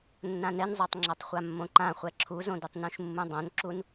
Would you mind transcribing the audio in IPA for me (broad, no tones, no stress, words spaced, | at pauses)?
nːãnɛnzˤatˤ ŋ͡ǁʌtˤχʷamːõǃã χʷɛǁʰuzõdɯtˤ nũʃmːũdˤõnǁun